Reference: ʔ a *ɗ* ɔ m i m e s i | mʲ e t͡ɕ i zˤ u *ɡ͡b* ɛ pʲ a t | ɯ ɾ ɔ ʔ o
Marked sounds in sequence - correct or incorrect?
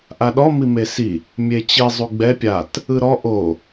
correct, correct

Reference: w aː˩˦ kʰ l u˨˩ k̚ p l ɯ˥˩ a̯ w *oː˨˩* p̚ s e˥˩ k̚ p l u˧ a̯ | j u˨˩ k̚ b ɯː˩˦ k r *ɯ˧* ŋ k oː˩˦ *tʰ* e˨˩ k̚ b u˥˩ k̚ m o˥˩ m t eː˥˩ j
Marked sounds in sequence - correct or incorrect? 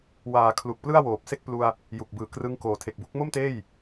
correct, correct, correct

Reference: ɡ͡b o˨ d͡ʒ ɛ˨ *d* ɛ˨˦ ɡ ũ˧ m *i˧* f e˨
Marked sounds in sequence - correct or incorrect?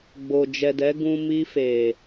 correct, correct

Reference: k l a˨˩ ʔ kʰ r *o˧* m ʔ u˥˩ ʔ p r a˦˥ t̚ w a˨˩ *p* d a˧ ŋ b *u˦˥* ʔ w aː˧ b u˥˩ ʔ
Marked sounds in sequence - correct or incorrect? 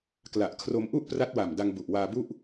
correct, incorrect: m, incorrect: u˨˩

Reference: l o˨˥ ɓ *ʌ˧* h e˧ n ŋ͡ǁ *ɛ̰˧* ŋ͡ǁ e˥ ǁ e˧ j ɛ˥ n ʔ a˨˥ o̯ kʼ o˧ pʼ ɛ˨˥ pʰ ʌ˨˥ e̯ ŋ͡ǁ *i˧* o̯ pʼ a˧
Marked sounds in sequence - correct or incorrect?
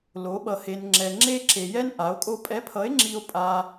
correct, incorrect: ɛ˧, correct

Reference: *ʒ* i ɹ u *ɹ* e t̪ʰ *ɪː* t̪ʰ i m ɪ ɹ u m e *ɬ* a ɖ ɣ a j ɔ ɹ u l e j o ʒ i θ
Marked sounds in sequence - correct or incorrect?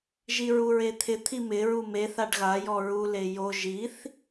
correct, correct, incorrect: ɪ, incorrect: θ

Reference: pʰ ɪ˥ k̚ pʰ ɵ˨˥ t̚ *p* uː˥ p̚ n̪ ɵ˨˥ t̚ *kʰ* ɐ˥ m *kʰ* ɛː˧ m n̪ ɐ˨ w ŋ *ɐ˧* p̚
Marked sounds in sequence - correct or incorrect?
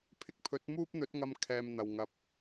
incorrect: m, incorrect: ŋ, correct, correct

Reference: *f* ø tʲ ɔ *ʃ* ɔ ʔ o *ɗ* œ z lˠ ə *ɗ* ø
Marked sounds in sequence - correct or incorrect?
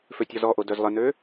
correct, incorrect: z, incorrect: d, incorrect: n

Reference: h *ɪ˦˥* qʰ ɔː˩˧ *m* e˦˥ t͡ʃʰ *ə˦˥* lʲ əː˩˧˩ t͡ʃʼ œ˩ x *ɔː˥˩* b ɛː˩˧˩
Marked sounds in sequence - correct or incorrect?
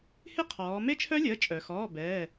correct, correct, incorrect: œ˦˥, incorrect: ɔː˩˧˩

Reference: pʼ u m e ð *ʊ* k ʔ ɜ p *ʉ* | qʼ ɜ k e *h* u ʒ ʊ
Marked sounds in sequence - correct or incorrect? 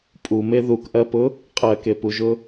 incorrect: u, incorrect: ʊ, incorrect: p

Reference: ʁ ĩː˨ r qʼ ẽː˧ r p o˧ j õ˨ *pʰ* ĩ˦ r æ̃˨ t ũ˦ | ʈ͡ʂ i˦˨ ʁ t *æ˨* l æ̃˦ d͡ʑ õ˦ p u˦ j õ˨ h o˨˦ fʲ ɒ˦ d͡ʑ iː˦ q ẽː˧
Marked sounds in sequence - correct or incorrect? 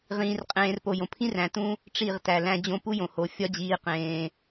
correct, correct

